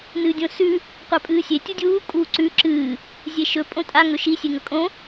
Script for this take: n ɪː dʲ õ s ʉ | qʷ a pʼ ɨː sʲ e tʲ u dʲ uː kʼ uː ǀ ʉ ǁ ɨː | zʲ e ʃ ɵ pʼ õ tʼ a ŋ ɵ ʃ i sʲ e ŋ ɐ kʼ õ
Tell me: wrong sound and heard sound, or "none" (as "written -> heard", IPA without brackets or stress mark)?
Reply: ɪː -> ɨː